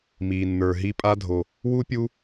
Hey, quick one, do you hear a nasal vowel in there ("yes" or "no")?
no